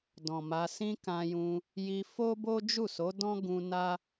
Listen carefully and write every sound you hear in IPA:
d ɔ̃˨ m a˧ s ĩ˦ k ã˧ j ũ˧ | j i˧ f o˦ b o˦ d͡ʒ u˦˨ s o˨˦ d ɔ̃˦ ɡ ũ˧ n a˦

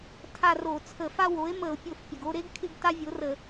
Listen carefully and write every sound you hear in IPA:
tʰ a˦˨ r o˧˩˧ t͡sʰ ə˧˩˧ f a˦ w o˩˥ e̯ m ə˧˩˧ o̯ pʲ o˧˩˧ f pʲ ə˩ ɡ o˦˨ ɾ e˦ ɡ kʰ ɪ˦ ɡ t a˦ vʲ o˩˥ r ə˧˩˧

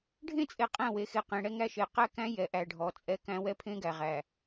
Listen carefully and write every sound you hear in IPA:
ɖʱ ẽ˦˨ t͡sʼ e˨ qʼ æ̃˦˨ w e˨ x e˨ q ẽ˨ ɽ ɛ˦ ŋ æ˦ ʃ e˨ q æ˦ k æ̃˦ j ɛ˨ ʔ æ˨ ɖʱ ɔ˨ t͡sʼ ɛ˦ k æ̃˦ w ɛ˦ pʰ ẽ˦ ɡ æ˨ ʁ æ˨

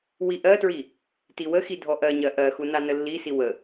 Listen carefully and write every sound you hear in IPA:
w i ʔ ɜ t ɹ i | t i w ə x i dʱ ɔ ʔ ɜ ɲ ɜ ʔ ɜ x u n a n ə lː i s i w ə

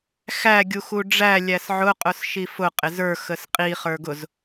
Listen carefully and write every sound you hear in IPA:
x æ ɡʲ u x u ɖ͡ʐ æ lʲ æ s ʕ ʊ qʼ ʊ s ʃ i f ʊ qʼ ɪ z ə˞ x ə s qʼ i χ ə˞ ɡ ʊ z

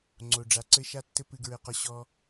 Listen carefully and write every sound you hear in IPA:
ŋ͡ǀ o˨ ɖ͡ʐ a˨˦ ǀ ɘ˦ ʃ a˦ tː ɘ˦ p ɨ˧ ɡ ɹ ɘ˧ q ɔ˧ ɕ ɔ˧

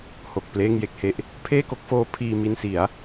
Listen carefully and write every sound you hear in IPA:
h o˨˩ k̚ p l eː˥˩ ŋ j e˦˥ k̚ h e˦˥ ʔ | pʰ eː˥˩ k o˦˥ k̚ f oː˦˥ pʰ iː˧ m i˧ n s i˩˦ a̯

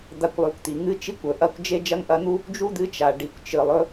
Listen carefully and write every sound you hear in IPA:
d̪ a˧ kʷ lˠ ʉ˩˧ kʷ t̪ i˩ ŋ ɨ˧ t͡ʃ i˧˥ kʷ ɵ˩ ʔ ɐ˧ kʷ d͡ʒ e˥ d͡ʒ ɐ˥ ŋ ʔ ɐ˧˥ n̪ u˥ | d͡ʒ u˥ d̪ ɨ˧˥ t͡ʃ a˩ ɖ i˩ kʷ t͡ʃ ɨ˩ lˠ ɵ˧

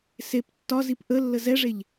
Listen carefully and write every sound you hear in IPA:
s e p tː ɒ z i p ʔ ə lː ə z ɛ ʐ e ʎ

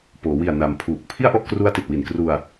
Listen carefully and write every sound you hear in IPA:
p oː˩˦ w i˨˩ a̯ n a˧ m pʰ uː˨˩ k̚ pʰ i˥˩ a̯ ʔ ɔ˥˩ ʔ k r u˦˥ a̯ t i˨˩ t̚ w i˨˩ n k r u˧ a̯

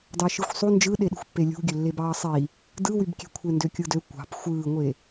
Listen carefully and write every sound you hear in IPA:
d ɑ ʃ ɯ xʷ sˤ u n d͡ʒ ɯ ɗ e ɗ i̤ xʷ pː e lʲ ṳ ɡʲ ø lː e b ɑː sˤ i | d ɯ w y b kʲ e̤ kʷʰ e n d ø kʲ ɯ d ø kʷ ɑ̤ p xʷ ɯː ŋʷ e

